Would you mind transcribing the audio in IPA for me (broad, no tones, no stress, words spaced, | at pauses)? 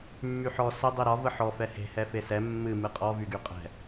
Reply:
mːyħɔ sə dˤiɾɒ vəħɔ fɛhe̤ hɛfesɛ mːɨ mɨqʼɔ vyɡyqʼɛ̤